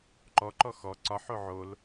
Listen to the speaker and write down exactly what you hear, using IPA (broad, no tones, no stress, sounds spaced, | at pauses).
ǃ ɔ ǃ ɔ x ɔ ǀ ɒ ħ o ʕ o l